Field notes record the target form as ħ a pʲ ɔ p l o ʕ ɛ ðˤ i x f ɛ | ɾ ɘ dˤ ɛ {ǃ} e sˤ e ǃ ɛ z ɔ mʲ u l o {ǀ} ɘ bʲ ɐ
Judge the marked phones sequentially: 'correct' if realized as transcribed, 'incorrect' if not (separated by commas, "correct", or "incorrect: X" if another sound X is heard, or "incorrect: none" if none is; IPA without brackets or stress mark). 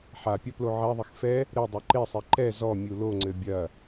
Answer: correct, incorrect: ŋ͡ǀ